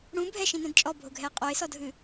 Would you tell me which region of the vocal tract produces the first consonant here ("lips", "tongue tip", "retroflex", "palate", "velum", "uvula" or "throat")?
retroflex